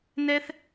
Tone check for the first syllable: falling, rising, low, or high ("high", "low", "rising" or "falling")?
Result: high